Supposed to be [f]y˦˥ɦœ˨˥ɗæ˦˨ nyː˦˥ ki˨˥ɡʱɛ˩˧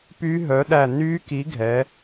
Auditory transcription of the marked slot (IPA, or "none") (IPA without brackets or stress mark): p